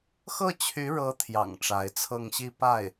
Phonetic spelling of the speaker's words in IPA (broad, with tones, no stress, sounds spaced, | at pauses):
x ɤ˥˩ t͡ɕʰ y˧˥ ɻ ɤ˧˥ t̪ʰ j ɑ̰˨˩ ŋ ʈ͡ʂ a˧˥ ɪ̯ t͡sʰ ɤ˥˧ ŋ ɕ i˥˧ p a˥˩ ɪ̯